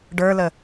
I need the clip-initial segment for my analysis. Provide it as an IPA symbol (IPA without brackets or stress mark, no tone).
ɖ